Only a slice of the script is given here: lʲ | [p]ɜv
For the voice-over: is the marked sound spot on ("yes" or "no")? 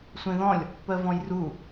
yes